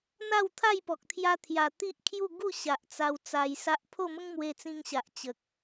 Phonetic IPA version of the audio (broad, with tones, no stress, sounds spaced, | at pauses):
n̪ a˥˧ w t̪ʰ a˥˧ j p ɔ˨ k̚ t̪ʰ j a˧ t̪ʰ j a˨˩ t̪ i˦ ʔ kʰ j u˥˧ ɡ u˥˧ ɕ a˨ ʔ t͡s a˧ w t͡s a˧ j s a˦ ʔ pʰ o˥˧ m ə˦ ŋ m w e˧ t͡s ĩ˧ ŋ ɕ a˨ ʔ t͡ɕ ə˨ k̚